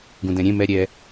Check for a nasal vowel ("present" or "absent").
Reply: present